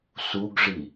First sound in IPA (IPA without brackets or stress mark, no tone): s